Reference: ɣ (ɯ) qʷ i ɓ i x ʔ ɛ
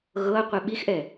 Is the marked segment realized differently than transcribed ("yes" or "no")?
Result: yes